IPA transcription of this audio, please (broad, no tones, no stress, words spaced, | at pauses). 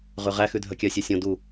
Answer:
ʁʉʁæ xʉdʱœkʲœ sʲœsʲõ du